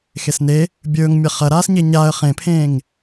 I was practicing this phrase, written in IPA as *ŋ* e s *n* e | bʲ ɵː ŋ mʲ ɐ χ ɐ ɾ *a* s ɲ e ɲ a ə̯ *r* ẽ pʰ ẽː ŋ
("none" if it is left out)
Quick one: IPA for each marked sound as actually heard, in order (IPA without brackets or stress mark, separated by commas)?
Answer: x, n, aː, χ